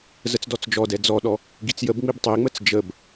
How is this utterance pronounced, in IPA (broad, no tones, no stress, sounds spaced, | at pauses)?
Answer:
z ə t͡s d ɔ t͡s d͡ʒ ɔ d ɛ d͡z ɔ ɗ ɔ | ɡ i t͡s j ə b ŋ͡m i b tˤ i ŋ͡m ə t͡s d͡ʒ ə b